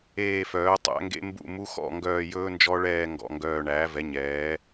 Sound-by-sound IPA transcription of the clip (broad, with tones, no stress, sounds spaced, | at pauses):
eː˦˨ f œː˩˥ tˤ æ̰˩˥ ŋ ɡ ḛ˦˥ m b ṵ˦˨ m u˦˥ x ɔ̰˦˨ ŋ ɡ œː˦˨ j ɵː˦˥ n d͡ʒ ɔ˦˥ ɭ ɛː˦˨ ŋ ɡ ɔ̰˦˨ ŋ ɡ œː˦˨ ɳ æː˩˥ v ɛ˩˥ ɲ ɛː˩˥